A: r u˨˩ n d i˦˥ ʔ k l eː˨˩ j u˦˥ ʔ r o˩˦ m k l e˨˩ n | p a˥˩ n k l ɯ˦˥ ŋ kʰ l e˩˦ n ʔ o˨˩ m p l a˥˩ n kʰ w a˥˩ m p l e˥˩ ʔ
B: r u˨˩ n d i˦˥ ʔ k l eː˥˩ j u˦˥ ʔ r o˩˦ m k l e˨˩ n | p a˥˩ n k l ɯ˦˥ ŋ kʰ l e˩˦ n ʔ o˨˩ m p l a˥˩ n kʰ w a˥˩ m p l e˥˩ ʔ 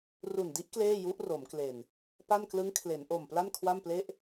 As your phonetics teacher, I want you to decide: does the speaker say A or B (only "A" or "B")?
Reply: B